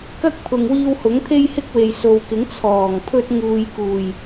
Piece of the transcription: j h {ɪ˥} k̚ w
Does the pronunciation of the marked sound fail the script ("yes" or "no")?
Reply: no